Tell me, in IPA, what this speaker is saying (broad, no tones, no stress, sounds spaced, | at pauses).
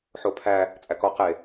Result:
ħ o pʰ æ | t͡sʼ æ k ɔ q e